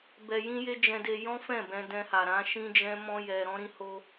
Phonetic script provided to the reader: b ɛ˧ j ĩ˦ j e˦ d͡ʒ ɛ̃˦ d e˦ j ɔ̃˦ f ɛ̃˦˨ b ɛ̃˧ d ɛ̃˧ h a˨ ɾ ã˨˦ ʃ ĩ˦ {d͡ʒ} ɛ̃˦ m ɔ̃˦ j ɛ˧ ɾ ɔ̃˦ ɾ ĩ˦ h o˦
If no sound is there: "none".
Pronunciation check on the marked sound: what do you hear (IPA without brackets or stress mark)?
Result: d͡ʒ